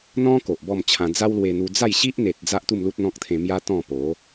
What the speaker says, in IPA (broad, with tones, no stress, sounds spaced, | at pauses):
n̪ ɔ̃˦ k o˨ ʔ b ɔ˥˧ m t͡ɕʰ ã˧ d͡z a˦ w l w e˧ n̪ u˧ d͡z a˥˧ j ɕ i˦ ʔ n̪ e˨ t̚ d͡z a˦ ʔ t̪ u˥˧ m l u˦ t̚ n̪ ɔ̃˦ k̚ t̪ʰ ẽ˧ m j a˦ t̪ ɔ̃˥˧ p o˨˦